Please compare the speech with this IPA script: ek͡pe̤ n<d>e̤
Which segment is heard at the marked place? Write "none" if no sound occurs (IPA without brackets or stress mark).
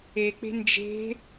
d͡ʒ